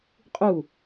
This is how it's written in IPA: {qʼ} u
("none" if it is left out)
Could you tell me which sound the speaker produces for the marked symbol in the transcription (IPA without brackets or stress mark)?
qʼ